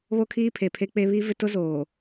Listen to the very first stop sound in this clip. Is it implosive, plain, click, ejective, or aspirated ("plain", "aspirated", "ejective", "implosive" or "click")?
aspirated